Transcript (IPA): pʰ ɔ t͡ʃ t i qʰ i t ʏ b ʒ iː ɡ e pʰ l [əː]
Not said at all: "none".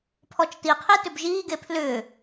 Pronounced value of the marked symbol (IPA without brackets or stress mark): ʏː